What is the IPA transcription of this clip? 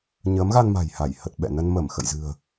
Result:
ɲəː˨˦mɣa˧n ma̤˨˩jha˧˩j hə˨˩t̚ ɓɛ̰˧˨ nə˧nmə˧˩m xə̰˧˨jzɨ̤˨˩ə̯

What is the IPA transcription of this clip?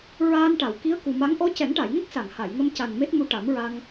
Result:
ɹaː˧nʈa˨˩˨w ki˧˥ə̯ku˨˩ma˧˥ŋ ʔɔ˧˥cɛ˨˩˦ŋʈa˨˩˨jŋə˦˥k̚ sa˨˩˨ŋha˨˩˨jŋə˧m ca˨˩n me˦˥t̚mu˧ ʈa˨˩˦mɹa˧ŋ

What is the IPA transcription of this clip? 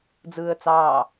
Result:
d͡zɯːə̯t͡sɑː

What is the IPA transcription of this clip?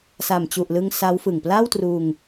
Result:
sa˨˩mt͡ɕu˨˩ʔlɯ˧ŋ sa˦˥wfɯ˨˩ŋ pla˥˩wtruː˧ŋ

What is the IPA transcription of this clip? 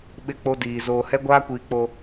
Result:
ɓɪ˦k͡po˦diː˨ zoː˨hɛ˦ɡʷaː˦kʷiː˨ k͡po˨

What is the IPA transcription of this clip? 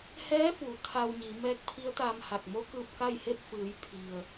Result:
hɛː˧˥fuː˩˧ t̪ʰa˧wɲi˩˧ mɛː˧˥k̚pʰi˧˥ə̯t̪aː˧mha˧˩k̚ mo˧˥kɯː˧p̚ka˥˨j he˥˨p̚fɯː˩˧j pʰi˩ə̯

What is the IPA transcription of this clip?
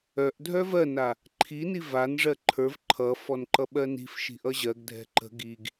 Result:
œʔdʱœ vɜna | ǃʰini vanʐɜ ǃʰə˞v ǃʰʌfɔn ǃʌɓɜni̤fʃi̤ ʔʌʑɜɡdʱɛ̤ ǃə̤ ɡiɡ

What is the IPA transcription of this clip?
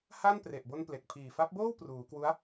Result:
ha˥˩n pre˨˩ʔbo˧n ple˨˩k̚pʰiː˨˩fa˦˥p̚boː˥˩w pruː˩˦kwu˦˥a̯

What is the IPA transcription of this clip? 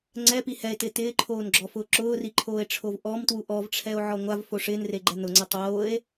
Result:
ŋ͡ǀɛpi hɛe̯tɪː tɪːǃʰoːnɡ͡ǁɔfʊː ǁʊːriǃʰoːe̯ʈ͡ʂʰov ʔɔmtwu ʔɔvʈ͡ʂʰɛo̯ʕɔ ŋʷavfo ʂɪːnreɡ͡ǃɛ nʊŋ͡ǀɛ tˤoːe̯

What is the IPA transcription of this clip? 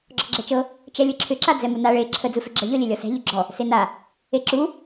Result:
ɡ͡ǁɔɡ͡ǁɛt͡ʃɤ | t͡ʃɛlʲɯǁʰʏ ǁad͡zɛmuna ɭe ǁʰə d͡zɯfʏɡ͡ǁə ʎɤlʲelʲɔsɛ̤ ʎʏɡ͡ǁɔ | sena | eǁu

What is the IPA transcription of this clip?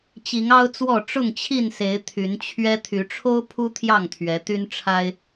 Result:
t͡ɕi˨˦ŋɑ˦ʊ̯t͡swɔ˥˨ ʈ͡ʂʊ˥˨ŋt͡ɕʰi˥˨nse˨˦ɪ̯ t̪ʰy˨˦nt͡ɕʰɥɛ˦ t̪ʰy˨˦ʈ͡ʂʰo˦ʊ̯pʰu˦ t̪ʰjɑ˥˨ŋt̪ʰɥɛ˨˦ t̪y˦nʈ͡ʂʰa˦ɪ̯

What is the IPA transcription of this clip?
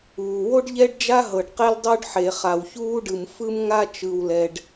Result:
uː˩wo˥ɖ ʎɛ˥ɖd͡ʒa˥ɦɤ˩ɖ qɛ˥ldˤo˥ɖħe˩ χa˩wçuː˥ɖɯ˩m fɯ˥mŋa˥ t͡ʃɯ˩wlɛ˩ɖ

